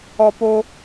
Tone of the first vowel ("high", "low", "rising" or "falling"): high